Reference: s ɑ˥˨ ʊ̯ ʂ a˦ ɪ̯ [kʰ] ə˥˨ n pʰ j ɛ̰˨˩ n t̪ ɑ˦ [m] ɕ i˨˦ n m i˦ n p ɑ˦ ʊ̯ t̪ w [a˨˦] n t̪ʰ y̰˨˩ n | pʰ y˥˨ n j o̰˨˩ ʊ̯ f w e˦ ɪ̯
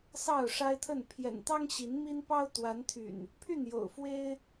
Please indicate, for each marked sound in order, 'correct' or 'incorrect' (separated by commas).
incorrect, incorrect, correct